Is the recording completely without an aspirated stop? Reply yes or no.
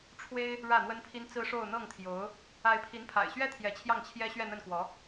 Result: no